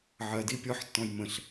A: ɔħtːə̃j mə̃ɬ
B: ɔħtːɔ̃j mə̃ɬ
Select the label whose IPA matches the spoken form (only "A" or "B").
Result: B